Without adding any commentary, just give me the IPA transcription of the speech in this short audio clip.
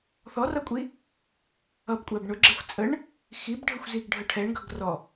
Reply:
θ ɔ r ʌ kʷʼ i | ʌ b kʷʼ æ b ɳ ʊ ɡ͡ǁ ɪ xʷ t͡sʼ ə ɳ | x i b ɖʱ ə xʷ z i ɡ ɖʱ ə ʈʰ ɛ ɳ ɡ ʌ ɡ r ɔ

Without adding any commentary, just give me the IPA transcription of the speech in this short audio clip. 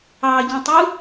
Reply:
ɑ ɟ œ̃ tˤ u

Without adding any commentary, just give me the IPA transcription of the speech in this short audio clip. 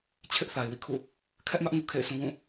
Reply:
t͡ɕʰ ɪ˦ ʔ θ a˨ ɪ̯ w ḭ˦˨ kʰ ṵ˦˨ | kʰ ɛ˦ ʔ m ä˦ ʔ ŋ u˨ kʰ ḛ˦˨ ɪ̯ s ũ˦ w ũ˦˨

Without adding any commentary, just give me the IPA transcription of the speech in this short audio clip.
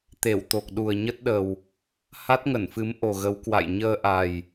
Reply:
t̪ e˧˩ w t̪ o˨˩ k̚ ɗ u˨˩ ə̯ ɲ ə˦˥ t̚ ɗ ə˨˩ w | h a˦˥ t̚ ŋ ə˧˩ n f ɨ˨˦ m ʔ o˨˩ ɣ ə˨˦ w k w a̰˧˨ j ɲ əː˧ ʔ a˨˩ j

